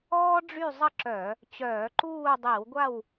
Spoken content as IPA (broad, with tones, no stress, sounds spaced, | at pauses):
ɔː˥ ɖ͡ʐ y˥˨ zˤ ə˥˨ ǁ œ˧˩˧ | t͡ɕ œː˧˩˧ ǃ uː˥˨ dˤ i˧˩˧ w ɡʷ a˥˨ w